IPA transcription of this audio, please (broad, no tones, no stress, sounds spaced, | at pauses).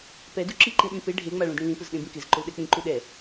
p ɛ d u ǁ i ǃ ĩ ɗ ĩ p e ɖʱ e ŋ͡m a ɭ ũ d ɽ ĩ l ĩ p ʊ z ɗ ẽ b ĩ k ɪ z ǃ ʊ l ɗ ɛ k͡p ĩ ǃ u ɗ ɛ